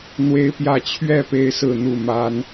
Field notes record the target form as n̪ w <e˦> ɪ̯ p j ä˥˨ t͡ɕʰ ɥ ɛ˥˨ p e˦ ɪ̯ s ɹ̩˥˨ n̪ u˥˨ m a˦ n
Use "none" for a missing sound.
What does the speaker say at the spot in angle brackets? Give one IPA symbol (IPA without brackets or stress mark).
e˦